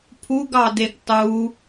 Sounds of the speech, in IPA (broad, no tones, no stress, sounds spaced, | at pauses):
pʰ u ɡ ɑ d e ɡ tˤ u